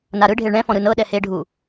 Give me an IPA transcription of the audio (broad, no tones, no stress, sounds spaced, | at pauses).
n a ɾ ɯ ɖʱ e ɭ ɳ ɛ̃ f ɔ̃ ɾ ɯ n ɤ ɗ ɛ h e ɖʱ u